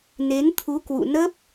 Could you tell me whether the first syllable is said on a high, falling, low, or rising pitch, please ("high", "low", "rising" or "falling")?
rising